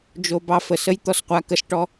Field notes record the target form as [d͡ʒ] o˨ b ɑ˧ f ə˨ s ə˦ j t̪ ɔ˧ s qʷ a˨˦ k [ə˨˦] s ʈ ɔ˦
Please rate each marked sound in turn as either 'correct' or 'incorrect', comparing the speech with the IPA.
correct, incorrect

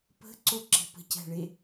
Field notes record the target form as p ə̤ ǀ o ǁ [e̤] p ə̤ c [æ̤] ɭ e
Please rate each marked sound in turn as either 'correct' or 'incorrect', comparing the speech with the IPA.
correct, correct

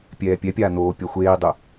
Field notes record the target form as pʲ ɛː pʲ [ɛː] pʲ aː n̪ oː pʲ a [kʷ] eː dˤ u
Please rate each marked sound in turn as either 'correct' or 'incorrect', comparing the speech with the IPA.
incorrect, incorrect

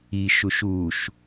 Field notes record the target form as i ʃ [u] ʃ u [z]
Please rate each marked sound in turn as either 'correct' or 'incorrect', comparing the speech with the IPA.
correct, incorrect

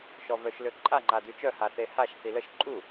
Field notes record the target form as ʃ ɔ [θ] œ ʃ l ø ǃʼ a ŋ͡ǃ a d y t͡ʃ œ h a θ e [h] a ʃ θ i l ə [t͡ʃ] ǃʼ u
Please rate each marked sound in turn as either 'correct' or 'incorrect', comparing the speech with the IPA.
incorrect, correct, incorrect

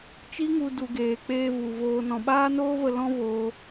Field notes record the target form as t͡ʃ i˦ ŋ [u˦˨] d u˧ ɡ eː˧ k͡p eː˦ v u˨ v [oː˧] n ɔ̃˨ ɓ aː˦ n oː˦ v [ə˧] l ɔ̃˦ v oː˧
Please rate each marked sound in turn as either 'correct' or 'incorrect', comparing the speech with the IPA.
incorrect, correct, correct

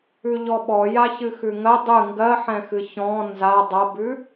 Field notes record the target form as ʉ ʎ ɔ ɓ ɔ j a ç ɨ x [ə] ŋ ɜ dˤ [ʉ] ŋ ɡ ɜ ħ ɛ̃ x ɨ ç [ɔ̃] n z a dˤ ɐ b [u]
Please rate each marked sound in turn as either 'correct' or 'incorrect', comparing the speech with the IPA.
incorrect, incorrect, correct, incorrect

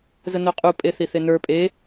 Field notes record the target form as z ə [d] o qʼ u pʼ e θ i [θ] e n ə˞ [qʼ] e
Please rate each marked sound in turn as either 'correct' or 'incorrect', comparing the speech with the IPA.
incorrect, correct, incorrect

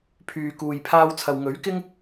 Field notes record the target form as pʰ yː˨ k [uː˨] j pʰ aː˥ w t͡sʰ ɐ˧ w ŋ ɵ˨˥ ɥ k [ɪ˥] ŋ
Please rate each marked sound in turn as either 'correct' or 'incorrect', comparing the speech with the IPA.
correct, correct

